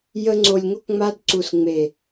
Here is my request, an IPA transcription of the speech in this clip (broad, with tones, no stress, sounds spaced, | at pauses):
j ə˧ ŋ͡ǀ o˨ lʲ ŋ o˧ k ŋ͡m a˧ d ǀ u˨ s ŋ͡m e˨